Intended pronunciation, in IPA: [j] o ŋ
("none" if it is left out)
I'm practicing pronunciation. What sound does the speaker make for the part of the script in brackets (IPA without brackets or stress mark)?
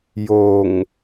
j